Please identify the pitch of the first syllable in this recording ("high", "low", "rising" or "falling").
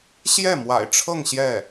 falling